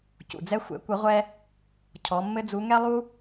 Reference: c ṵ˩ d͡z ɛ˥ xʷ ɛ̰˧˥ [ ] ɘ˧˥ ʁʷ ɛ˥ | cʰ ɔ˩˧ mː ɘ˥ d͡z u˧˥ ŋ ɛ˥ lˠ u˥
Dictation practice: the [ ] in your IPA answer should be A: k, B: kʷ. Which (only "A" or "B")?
B